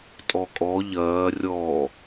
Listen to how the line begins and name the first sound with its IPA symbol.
tʼ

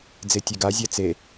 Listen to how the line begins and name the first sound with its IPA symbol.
d͡z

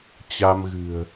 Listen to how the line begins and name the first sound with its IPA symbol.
t͡ɕ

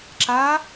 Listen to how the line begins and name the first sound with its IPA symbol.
ǁ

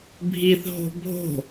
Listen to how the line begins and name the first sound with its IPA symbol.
bʱ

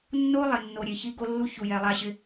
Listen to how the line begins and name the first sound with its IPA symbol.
nː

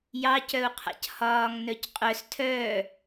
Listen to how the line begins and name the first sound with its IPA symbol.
j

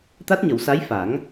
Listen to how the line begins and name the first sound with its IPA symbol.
t̪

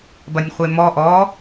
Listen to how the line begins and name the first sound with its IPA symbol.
b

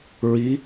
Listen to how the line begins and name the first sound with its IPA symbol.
ɹ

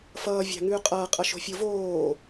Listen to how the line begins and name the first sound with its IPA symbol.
f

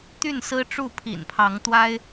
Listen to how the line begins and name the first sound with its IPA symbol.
t̪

